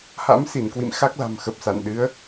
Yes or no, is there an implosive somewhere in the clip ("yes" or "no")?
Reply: yes